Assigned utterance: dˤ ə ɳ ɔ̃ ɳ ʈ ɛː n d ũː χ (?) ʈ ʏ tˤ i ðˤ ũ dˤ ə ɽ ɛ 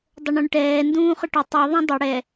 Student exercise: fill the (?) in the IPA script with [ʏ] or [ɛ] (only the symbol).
ʏ